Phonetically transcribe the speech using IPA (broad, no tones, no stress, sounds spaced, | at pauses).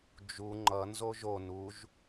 d͡ʒ u ŋ͡ǃ ʌ n z o ʒ o n u ʒ